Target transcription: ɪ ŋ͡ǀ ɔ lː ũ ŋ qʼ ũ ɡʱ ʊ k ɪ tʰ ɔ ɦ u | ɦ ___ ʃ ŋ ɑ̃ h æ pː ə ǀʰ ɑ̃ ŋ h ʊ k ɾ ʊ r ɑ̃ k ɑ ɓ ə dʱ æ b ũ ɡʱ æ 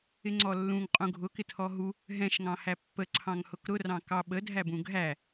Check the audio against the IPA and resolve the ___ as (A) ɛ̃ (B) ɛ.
A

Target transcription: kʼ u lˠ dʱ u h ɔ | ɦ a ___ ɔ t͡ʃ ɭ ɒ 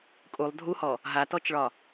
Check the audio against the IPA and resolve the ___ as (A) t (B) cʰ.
A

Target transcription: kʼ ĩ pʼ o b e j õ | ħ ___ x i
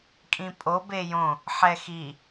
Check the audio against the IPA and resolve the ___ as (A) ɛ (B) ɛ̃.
A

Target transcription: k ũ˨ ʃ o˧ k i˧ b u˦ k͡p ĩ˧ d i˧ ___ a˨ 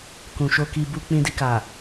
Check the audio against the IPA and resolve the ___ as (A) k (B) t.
A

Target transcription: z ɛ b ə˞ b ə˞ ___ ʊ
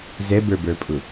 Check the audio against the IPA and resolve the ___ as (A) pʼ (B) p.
A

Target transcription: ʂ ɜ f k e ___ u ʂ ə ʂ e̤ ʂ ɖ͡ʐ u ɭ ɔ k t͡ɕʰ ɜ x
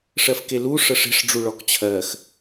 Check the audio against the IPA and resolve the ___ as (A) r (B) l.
B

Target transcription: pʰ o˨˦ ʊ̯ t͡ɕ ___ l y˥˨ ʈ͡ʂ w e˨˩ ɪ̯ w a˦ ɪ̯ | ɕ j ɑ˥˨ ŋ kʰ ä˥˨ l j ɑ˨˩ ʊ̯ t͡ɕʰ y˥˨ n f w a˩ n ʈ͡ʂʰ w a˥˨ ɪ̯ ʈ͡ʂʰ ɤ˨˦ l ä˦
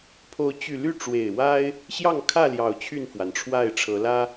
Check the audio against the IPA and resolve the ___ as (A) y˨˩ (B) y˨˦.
A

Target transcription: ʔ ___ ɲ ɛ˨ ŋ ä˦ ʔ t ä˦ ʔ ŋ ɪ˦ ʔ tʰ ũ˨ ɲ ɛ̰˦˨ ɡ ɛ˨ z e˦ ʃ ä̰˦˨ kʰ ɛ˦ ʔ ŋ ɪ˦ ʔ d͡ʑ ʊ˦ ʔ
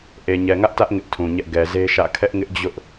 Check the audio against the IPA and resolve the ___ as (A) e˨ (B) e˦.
A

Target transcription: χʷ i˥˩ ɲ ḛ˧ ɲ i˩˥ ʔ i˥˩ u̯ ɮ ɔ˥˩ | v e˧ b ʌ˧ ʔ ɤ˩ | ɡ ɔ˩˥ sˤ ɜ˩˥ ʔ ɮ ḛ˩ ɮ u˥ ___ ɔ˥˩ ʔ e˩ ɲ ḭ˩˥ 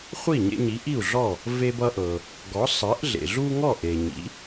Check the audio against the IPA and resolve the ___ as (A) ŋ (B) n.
A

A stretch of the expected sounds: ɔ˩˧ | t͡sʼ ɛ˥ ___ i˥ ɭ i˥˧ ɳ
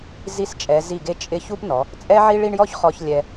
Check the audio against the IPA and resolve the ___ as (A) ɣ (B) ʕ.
B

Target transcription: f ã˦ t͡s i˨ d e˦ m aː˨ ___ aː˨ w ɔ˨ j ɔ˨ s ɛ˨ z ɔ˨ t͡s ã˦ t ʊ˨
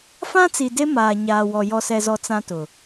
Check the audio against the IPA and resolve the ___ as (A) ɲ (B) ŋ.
A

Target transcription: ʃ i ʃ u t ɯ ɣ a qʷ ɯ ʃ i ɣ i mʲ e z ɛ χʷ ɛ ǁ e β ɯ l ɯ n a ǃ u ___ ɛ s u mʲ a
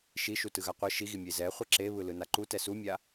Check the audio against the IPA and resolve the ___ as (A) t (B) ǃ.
A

